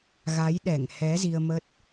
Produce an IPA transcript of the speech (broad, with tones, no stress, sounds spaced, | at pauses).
ɣ a˨˦ j ɗ ɛ˧˩ ŋ h ɛ˨˦ z i˧ ə̯ m ə˦˥ t̚